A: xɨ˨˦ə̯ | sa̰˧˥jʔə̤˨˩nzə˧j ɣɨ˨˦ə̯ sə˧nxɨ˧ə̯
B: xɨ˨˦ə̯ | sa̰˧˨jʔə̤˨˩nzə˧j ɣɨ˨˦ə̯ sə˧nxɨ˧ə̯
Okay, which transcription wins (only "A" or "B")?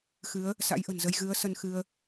A